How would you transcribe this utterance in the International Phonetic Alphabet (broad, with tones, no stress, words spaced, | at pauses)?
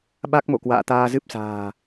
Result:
ɓa˦˥k̚mo̰˧˨kwa̰ː˧˨ t̪aː˧zɨ˦˥p̚sa̤ː˨˩